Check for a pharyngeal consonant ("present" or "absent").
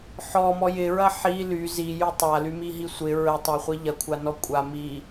present